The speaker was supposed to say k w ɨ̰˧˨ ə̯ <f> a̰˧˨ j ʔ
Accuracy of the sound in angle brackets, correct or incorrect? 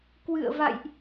incorrect